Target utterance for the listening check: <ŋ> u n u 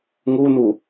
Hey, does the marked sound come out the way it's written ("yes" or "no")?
yes